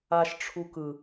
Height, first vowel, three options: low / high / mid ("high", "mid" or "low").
low